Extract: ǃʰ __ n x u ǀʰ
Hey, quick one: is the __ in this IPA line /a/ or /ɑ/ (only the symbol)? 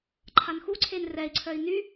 a